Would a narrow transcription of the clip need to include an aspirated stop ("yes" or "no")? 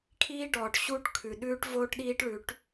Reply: yes